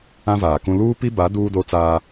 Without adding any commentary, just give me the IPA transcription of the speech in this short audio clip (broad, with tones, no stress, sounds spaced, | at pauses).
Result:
ã˦ v aː˨ k ũ˦ l uː˦ p i˦ b a˨˦ d uː˦ d o˦ t͡s aː˦